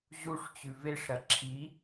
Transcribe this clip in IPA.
ʑ u ʂ t͡ɕ ʉ v e ʂ ɾ ɐ ǁʰ i

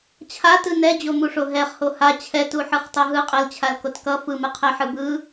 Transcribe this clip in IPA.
t͡ɕʰ a t ɯ n ɛ d͡ʑ o m u ʂ o ɦ ɛ χ h o h a t͡ɕʰ ɛ t u ħ ɯ χ tˤ ʌ ɦ ɯ qʼ ɛ l t͡ɕʰ a l k o t k ʌ f ɯ m ɯ qʰ ɛ ħ ɯ b ɯ

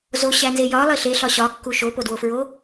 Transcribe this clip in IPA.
z o ɕ æ n z e j ɒ lˠ i ɬ e ɬ ɒ ɕ ɒ kː u ʃ o p o d w o f ɹ o

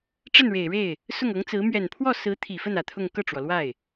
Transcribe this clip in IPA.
ʈ͡ʂ ə˥˩ n ɻ e˨˩ ɪ̯ ɻ e˥˩ ɪ̯ | s ʊ˥˩ ŋ ɤ˧˥ ŋ t͡s ɹ̩˧˥ m ɥ ɛ˨˩ n pʰ w ɔ˥˩ s ɹ̩˧˥ t̪ʰ i˨˩ f ə˥˩ n ä˨˩ t̪ʰ ʊ˥˧ ŋ k ɤ˥˩ ʈ͡ʂ w ɔ˩ l w a˥˩ ɪ̯

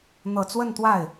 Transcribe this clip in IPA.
n̪ ɤ˨˩ t͡s w ə˥˧ n t̪ w a˥˩ ɪ̯

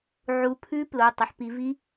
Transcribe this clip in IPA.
ʕ u˨˦ pʰ ʉ˦˥ p l o˩˧˩ tˤ ɐ˨˦ ħ p i˨˦ v i˦˥

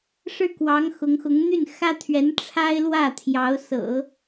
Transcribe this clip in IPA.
ʂ ɻ̩˥˩ k w ɑ˧˥ ŋ x ʊ˧˥ ŋ x ʊ˧˥ ŋ n̪ y˥˩ n x ä˥ t̪ʰ ɥ ɛ˧˥ n ʈ͡ʂʰ a˥ ɪ̯ l w ä˥˩ t̪ʰ j ɑ˧˥ ʊ̯ s ɤ̰˨˩˦

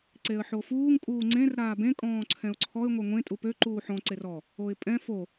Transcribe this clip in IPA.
ǀ e ə̯ ħ o f uː ŋ kʼ uː ŋ͡ǀ ẽ r ɾ aː b ẽ kʼ ɔ̃ː ǀʰ ɛ̃ ʊ̯ ǀʰ ɔ ɪ̯ ŋʷ ɛ ŋʷ ẽ tʼ u p ø ǃ uː ħ ɔ̃ ǀ e r ɔ | o ɪ̯ pʼ ɛ̃ f o

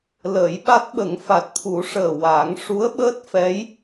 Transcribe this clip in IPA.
l əː˨˩˦ j ɓ a˦˥ t̚ ɓ ə˨˩˦ ŋ f a˨˩ t̚ t̪ʰ u˨˩˦ ʂ əː˨˩ w a˨˩˦ ŋ ʂ u˧˥ ə̯ ɓ əː˦˥ t̚ f ɛ˧˥ j

